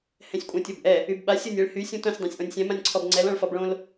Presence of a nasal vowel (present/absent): present